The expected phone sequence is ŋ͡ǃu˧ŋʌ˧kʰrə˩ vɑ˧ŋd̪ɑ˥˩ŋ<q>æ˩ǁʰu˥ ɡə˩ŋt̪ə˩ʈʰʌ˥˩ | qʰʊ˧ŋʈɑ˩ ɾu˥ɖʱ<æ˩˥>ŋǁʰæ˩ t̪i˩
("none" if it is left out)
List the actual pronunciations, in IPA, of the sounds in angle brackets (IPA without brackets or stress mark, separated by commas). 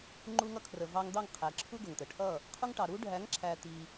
qʰ, æ˩˥